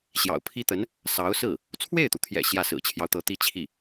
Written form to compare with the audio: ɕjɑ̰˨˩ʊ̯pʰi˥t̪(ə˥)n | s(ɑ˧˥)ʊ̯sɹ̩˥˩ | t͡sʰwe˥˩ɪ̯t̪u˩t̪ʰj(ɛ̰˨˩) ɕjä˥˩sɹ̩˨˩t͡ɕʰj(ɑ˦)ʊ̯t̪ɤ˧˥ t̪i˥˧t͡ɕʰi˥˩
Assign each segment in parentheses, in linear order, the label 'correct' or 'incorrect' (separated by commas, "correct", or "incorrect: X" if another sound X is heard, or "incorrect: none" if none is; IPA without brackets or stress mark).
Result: incorrect: ə˧˥, correct, correct, correct